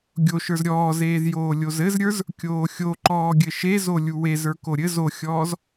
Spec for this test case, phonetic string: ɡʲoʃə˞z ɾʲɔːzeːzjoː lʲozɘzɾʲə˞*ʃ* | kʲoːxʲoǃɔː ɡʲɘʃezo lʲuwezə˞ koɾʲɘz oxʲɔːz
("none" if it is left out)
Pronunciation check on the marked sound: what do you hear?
z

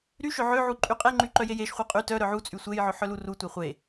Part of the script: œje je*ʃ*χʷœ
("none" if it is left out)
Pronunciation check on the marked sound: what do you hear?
ʃ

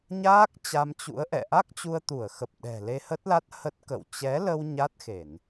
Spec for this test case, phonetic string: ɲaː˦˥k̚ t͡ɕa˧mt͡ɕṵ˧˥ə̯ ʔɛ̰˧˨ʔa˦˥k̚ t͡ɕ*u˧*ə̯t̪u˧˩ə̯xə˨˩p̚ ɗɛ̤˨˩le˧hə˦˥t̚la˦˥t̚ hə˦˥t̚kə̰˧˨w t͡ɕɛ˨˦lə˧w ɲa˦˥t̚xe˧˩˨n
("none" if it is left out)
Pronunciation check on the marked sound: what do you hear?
u˧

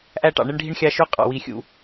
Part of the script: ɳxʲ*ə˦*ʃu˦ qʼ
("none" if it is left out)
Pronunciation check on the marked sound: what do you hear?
ɑ˦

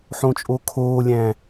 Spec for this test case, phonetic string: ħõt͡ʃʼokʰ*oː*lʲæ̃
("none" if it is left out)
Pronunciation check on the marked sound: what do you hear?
oː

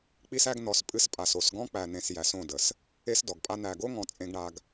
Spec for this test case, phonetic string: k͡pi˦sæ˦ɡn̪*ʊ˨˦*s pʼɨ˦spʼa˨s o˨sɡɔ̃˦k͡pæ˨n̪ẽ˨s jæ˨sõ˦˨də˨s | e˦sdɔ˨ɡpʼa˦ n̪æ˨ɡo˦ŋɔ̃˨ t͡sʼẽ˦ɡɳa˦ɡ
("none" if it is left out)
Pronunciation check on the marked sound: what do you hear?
ɔ˨˦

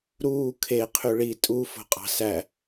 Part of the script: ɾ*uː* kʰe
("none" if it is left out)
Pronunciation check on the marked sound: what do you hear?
uː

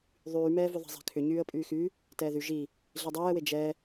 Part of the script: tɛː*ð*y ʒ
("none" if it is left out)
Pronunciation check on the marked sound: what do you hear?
ð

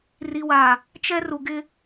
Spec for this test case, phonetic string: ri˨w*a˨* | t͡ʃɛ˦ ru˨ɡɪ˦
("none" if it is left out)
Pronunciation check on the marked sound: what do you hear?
a˨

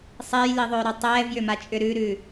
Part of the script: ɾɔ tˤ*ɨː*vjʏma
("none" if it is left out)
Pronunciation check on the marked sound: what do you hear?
ɛː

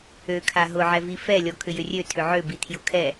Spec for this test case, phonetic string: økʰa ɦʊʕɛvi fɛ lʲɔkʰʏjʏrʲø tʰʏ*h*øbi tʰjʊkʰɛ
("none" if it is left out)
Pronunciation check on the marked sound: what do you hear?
ʕ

